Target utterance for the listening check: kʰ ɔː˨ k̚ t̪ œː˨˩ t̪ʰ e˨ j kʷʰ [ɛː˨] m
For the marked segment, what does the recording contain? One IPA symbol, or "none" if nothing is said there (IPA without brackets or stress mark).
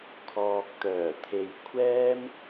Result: ɛː˥